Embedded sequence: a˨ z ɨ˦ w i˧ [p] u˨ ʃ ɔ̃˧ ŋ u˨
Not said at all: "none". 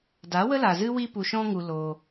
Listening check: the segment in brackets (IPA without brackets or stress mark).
p